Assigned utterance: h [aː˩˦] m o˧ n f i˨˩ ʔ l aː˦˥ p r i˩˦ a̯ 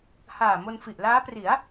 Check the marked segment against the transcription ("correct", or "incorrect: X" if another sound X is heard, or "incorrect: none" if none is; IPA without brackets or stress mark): incorrect: aː˨˩